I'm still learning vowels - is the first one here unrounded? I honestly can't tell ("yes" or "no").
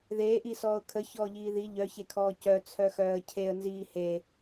yes